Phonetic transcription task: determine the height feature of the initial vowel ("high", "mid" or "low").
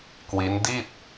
high